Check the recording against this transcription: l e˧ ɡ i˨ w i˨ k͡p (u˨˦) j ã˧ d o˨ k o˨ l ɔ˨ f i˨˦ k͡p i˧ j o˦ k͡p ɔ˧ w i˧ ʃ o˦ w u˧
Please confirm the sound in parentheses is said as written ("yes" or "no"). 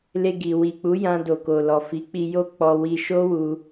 yes